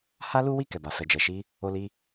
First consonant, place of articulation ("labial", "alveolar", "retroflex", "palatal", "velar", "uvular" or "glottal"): glottal